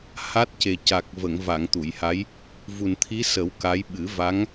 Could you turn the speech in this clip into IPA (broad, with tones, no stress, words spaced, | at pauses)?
ha˦˥t̚ce˨˩ ca˨˩k̚ və˨˩˨ŋva˨˩˨ŋ t̪u˨˩˨jha˧˥j | vu˨˩nt̪ʰi˧˥sə˨˩˦w ka˧˥j ɓɨ˨˩˦va˧˥ŋ